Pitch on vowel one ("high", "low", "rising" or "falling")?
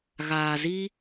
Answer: low